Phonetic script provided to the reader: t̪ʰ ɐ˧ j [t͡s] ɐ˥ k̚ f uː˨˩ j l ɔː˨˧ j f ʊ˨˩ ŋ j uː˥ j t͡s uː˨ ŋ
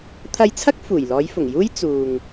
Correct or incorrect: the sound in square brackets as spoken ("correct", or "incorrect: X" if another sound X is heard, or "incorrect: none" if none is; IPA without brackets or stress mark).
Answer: incorrect: t͡sʰ